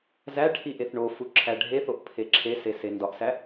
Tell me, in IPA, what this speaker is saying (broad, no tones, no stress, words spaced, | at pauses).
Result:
zæʈʰi ʔeθɳofu ǁʰæɖʱeθoʔ pʰeǁʰese sendɒʔsæ